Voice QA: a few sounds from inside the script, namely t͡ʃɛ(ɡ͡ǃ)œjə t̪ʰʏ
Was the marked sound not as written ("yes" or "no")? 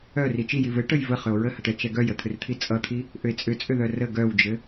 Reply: yes